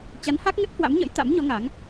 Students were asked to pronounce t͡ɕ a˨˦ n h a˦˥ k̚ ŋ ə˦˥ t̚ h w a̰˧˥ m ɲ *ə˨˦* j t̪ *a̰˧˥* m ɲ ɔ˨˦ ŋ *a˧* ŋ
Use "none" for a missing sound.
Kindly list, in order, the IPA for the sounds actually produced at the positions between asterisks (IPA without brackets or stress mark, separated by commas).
ə̰˧˥, a̰˧˥, a˨˦